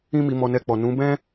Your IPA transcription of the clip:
ĩ˦ m i˧ m ɔ˧ n ɛ˧ k͡p ɔ˨ n ũ˨˦ b ɛ̃˦

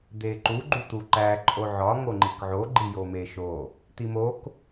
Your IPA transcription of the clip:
d̪ e ǃ u ɡ͡ǃ u t̪ u ǃ æ ǃʼ o ʕ ɒ ŋ o ŋ͡ǃ i k ʕ o ɡ͡ǃ i j o m e ʃ o | t̪ i m o k

